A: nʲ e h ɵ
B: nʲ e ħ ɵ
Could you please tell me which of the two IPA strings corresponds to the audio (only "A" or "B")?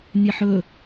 B